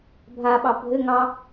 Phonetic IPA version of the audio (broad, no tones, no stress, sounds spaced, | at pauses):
bʱ a ɓ ɑ bʱ ɘ ŋ ɑ